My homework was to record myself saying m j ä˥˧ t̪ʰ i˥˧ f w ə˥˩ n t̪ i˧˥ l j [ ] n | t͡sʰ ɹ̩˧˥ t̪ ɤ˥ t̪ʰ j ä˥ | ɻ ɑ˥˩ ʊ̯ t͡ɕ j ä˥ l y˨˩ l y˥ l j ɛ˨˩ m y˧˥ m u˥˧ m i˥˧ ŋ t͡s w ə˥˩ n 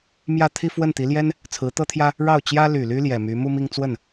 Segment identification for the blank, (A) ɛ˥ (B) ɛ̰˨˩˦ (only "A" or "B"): A